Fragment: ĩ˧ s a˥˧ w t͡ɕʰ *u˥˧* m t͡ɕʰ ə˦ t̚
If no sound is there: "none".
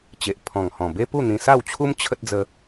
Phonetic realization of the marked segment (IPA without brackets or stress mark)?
u˦